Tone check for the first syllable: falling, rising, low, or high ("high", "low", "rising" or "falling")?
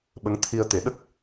rising